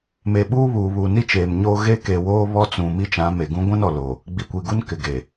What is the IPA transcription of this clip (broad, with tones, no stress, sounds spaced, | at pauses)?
m e˨ ɓ uː˦ β uː˨ β uː˨ n i˦ t͡ʃ eː˨ m ɲ oː˦ ɣ e˦ k e˨ w oː˦ β ɔ˦ t͡s ũ˨ m i˦ t͡ʃ ã˨˦ m e˨ ɡ ũ˦ ɡʷ ã˦ n ɔ˨ l oː˨ | ɡ͡b i˨ kʷ i˨ ɡ u˦ n k ɪ˨ ɡ eː˨